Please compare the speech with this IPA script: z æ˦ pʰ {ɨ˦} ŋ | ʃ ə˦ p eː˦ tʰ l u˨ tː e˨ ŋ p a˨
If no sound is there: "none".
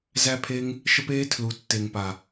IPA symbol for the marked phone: e˦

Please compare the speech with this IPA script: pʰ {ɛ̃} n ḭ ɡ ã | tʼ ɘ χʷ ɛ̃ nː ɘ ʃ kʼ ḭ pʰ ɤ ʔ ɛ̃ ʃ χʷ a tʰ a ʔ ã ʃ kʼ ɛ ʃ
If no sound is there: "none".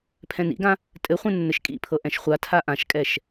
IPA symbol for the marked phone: ɛ̃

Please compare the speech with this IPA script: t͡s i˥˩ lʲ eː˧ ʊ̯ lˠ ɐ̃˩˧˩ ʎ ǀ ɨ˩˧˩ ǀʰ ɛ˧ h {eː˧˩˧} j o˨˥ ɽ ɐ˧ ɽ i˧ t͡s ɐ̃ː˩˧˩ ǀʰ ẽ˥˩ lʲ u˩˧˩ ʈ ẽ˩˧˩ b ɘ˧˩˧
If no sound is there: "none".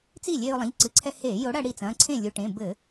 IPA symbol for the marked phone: eː˧˩˧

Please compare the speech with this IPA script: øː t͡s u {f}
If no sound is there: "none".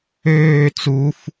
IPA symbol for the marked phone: f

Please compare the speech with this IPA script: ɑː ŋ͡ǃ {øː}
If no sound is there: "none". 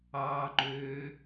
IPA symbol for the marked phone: øː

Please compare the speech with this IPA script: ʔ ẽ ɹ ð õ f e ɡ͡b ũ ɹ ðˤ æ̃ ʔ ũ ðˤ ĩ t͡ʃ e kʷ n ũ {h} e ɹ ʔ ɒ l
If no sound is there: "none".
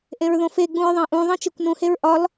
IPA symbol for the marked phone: h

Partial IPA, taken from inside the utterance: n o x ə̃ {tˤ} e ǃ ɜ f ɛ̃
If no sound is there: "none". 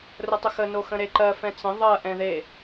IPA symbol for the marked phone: ɾ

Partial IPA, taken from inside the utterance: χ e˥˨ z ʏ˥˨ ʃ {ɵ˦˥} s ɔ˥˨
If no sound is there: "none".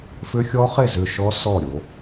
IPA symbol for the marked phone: ɔ˦˥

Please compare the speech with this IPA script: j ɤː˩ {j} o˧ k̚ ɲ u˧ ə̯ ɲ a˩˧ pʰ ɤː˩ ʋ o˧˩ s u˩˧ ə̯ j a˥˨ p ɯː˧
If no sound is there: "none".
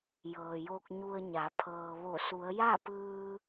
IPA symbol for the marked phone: j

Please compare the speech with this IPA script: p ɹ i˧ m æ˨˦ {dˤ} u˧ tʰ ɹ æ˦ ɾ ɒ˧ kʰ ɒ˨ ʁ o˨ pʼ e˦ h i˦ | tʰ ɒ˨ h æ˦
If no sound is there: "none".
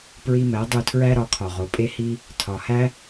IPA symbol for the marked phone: dˤ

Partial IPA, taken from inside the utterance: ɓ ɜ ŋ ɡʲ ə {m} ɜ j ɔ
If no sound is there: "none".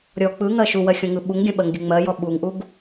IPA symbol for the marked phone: ŋ͡m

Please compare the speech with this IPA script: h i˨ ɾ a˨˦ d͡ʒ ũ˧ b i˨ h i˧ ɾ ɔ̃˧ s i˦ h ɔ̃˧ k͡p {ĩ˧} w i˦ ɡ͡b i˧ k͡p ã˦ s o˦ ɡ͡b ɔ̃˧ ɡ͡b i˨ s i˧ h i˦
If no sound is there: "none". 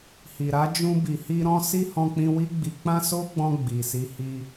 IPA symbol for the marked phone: ĩ˧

